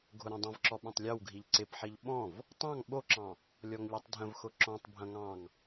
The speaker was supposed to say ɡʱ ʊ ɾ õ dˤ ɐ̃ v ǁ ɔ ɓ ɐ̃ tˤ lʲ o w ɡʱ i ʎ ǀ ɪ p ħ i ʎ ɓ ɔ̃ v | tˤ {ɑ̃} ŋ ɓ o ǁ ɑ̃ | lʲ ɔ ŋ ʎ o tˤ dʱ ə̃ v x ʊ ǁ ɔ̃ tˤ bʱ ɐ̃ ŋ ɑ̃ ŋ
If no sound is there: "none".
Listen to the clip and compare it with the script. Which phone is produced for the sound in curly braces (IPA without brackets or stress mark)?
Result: ɑ̃